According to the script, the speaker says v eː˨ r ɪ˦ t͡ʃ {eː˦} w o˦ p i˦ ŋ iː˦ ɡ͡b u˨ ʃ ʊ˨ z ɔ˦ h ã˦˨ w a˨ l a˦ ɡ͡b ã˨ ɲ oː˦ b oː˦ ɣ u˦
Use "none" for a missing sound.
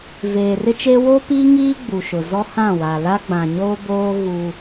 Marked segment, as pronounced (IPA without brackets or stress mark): eː˦